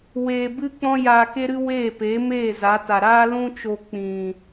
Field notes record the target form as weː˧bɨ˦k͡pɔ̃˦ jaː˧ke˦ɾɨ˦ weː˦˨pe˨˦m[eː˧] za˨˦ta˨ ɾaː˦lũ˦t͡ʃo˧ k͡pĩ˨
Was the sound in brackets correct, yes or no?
no